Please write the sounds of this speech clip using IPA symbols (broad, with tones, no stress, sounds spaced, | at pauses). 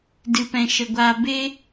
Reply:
d ɨ˧ p ɛ̃˧ ʃ ə˧ ɡʷ aː˧ b e˦